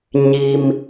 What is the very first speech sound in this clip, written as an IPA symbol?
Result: ɲ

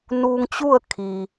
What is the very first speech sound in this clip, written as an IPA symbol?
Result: n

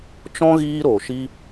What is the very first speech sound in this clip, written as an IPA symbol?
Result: t͡ʃ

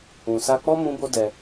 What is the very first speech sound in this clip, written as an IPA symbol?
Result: ũ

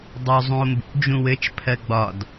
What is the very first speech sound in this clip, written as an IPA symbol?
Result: dˤ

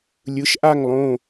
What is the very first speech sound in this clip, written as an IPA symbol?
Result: lʲ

